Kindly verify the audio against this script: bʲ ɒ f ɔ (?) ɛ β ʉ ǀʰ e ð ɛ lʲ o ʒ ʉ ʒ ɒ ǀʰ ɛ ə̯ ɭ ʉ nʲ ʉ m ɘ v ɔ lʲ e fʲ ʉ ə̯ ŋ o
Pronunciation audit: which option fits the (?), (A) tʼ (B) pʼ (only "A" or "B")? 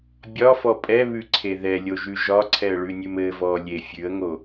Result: B